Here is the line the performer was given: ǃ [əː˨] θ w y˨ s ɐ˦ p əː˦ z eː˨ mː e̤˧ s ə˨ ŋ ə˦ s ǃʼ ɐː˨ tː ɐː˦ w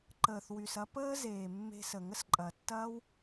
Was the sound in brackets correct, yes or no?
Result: yes